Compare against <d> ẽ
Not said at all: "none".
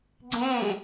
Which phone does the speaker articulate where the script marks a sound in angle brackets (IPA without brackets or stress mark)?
ɡ͡ǀ